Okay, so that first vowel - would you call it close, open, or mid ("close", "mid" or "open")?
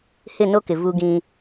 close